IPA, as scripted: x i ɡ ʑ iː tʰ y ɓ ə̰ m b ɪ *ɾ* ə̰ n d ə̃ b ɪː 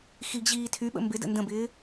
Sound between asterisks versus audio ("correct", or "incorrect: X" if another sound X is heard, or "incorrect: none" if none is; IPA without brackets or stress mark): incorrect: d